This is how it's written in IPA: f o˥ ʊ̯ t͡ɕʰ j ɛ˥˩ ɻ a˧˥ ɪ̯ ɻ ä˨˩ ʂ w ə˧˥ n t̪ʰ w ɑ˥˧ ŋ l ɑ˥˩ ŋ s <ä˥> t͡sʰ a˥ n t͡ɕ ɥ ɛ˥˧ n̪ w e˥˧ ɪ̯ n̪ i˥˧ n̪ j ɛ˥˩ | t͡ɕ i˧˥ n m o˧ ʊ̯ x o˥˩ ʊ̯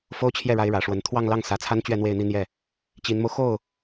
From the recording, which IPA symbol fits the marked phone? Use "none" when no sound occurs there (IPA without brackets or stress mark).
ä˧˥